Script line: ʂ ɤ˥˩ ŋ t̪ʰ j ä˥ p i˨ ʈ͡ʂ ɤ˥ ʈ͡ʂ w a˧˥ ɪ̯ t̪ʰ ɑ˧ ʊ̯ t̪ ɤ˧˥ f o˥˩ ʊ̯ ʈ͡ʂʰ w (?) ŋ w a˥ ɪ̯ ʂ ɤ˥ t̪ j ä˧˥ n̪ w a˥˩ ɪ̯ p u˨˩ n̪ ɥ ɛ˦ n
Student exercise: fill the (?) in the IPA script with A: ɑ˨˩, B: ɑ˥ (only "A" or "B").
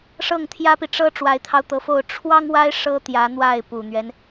B